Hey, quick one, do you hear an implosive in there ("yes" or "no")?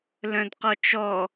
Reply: no